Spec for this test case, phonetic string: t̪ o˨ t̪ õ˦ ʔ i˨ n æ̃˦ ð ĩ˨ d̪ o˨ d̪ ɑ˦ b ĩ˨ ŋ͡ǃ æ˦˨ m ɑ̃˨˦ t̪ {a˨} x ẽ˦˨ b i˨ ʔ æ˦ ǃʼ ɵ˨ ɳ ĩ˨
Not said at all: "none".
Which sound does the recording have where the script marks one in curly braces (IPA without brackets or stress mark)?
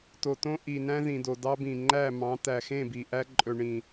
æ˨